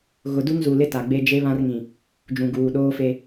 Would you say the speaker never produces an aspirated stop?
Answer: yes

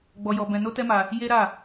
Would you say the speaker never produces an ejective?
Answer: yes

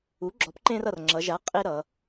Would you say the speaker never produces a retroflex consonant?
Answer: yes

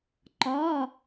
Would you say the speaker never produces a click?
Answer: no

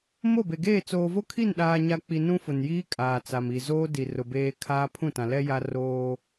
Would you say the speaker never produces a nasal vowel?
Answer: no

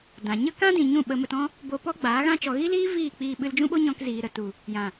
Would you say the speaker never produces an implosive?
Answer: no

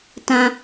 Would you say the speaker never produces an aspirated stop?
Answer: yes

